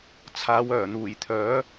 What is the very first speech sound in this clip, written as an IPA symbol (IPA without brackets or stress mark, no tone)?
t͡sʰ